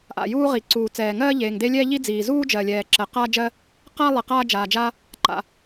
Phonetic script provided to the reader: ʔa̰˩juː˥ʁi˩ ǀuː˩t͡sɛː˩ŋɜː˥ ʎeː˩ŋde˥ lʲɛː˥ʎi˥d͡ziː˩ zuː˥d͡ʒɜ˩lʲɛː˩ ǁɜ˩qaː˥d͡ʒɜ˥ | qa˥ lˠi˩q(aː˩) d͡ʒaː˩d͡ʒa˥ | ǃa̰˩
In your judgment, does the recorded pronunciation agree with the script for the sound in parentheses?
no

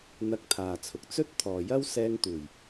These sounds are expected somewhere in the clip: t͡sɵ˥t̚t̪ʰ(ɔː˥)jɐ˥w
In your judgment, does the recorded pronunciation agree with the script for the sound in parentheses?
no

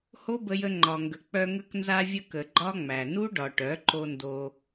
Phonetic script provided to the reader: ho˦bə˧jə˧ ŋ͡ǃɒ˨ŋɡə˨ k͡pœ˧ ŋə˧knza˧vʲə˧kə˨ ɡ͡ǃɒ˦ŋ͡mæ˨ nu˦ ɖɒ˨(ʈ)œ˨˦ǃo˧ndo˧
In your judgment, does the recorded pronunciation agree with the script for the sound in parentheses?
yes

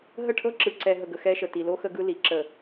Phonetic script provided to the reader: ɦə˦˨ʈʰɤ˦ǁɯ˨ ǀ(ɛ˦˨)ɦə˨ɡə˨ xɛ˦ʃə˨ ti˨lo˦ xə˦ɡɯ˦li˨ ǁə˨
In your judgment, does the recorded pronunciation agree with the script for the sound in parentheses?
no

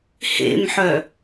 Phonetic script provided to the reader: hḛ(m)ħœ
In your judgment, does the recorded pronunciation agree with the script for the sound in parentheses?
yes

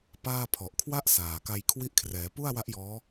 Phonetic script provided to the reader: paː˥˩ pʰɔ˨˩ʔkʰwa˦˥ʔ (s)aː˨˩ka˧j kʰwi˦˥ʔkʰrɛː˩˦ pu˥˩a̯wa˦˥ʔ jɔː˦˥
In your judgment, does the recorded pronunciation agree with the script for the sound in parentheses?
yes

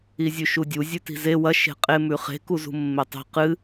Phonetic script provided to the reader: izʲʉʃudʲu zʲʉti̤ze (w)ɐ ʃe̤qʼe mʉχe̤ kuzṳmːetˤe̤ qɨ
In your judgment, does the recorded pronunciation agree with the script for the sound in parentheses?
yes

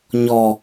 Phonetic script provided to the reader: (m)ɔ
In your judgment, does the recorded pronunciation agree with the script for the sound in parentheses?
no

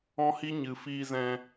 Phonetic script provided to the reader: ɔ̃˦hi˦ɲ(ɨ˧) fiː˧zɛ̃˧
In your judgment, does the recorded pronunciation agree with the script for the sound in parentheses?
yes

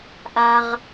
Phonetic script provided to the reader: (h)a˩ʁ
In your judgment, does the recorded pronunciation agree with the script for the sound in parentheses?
no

